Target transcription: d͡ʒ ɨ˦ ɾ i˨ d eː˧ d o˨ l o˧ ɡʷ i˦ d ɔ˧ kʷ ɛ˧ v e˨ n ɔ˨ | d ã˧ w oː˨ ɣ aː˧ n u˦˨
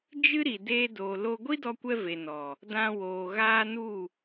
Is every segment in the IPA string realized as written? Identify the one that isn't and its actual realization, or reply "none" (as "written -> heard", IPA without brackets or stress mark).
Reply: none